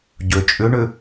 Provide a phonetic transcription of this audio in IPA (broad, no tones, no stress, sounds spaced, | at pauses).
ɟ ø t͡ʃʼ ʏ ɳ ʏ